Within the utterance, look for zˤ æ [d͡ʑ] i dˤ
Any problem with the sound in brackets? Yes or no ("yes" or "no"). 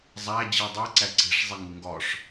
no